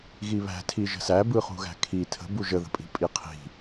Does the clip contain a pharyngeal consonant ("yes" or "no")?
no